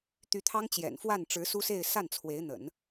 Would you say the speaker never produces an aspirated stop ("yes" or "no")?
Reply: no